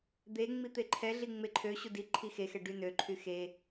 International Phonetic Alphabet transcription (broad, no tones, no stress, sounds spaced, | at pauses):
d̪ e ŋ͡m i t̪ e ǃʰ ɛ ɮ i ŋ͡m e ǃʰ ø ɕ u d i ǃʰ i x e x ɛ ɖ y n ø ǃʰ y x e